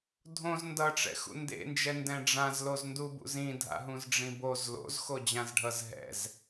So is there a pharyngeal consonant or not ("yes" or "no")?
no